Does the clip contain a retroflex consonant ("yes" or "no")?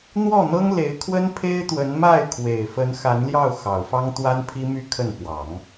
no